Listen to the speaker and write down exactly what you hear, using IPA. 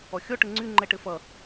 ɔxʲɔ ʈɘŋ͡ǀy ŋ͡ǃɛʈɘfʌ

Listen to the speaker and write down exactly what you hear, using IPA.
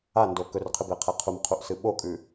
ando kɵrqʰɨbeqʰe qʰumqʰuʔsɨ ɓokʼʉ

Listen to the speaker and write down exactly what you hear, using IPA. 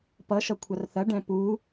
pʌʃʌkʷʰɐr θɐɖɛ̃ pu

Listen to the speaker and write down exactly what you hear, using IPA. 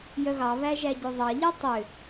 jœɣɑβæ ʒæɟøðˤɑʎi tˤø

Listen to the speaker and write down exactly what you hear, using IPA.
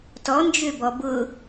tɔnd͡ʒøbɔ bʊ

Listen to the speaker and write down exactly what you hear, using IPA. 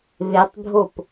βetˤbʱop

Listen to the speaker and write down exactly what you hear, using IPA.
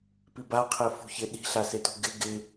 pibaqʰe fṳçɪ ɗi̤ɬasetṳ ɡɪ ɡɪ

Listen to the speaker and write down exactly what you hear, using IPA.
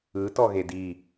ɯ tɔɣedi

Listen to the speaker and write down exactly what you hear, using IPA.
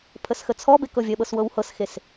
pʰəsxət͡sʰɔbek ɤvʲəɓɤs wɤwhɤsxes

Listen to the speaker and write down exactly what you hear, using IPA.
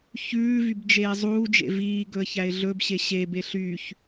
çʉːvybd͡ʒeː zˤuːd͡ʒḛ viːɡɵə̯çæɪ̯ ɮɵbɕe ɕebe ɬyːç

